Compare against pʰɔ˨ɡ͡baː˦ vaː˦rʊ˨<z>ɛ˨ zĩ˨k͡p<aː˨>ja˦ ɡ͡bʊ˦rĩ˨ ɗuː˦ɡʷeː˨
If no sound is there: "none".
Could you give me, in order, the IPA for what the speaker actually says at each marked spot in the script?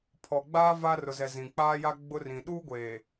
z, aː˦

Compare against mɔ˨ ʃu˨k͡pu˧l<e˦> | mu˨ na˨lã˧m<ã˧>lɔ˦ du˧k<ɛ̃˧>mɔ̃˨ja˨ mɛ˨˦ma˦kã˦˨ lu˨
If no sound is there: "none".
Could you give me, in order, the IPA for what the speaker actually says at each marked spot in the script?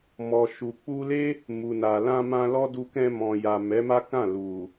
e˦, ã˧, ɛ̃˧

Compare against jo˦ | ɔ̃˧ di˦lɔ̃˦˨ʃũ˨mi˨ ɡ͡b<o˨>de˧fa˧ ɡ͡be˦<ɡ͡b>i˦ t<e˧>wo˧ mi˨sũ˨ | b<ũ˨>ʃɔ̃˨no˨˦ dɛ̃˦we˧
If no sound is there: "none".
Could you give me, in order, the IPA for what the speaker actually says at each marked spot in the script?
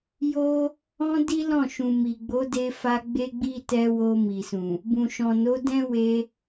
o˨˦, ɡ͡b, ɛ˧, ũ˨

